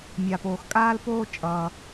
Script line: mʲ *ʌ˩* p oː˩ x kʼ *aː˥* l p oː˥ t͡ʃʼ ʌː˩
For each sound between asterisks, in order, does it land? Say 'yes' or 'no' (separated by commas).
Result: no, yes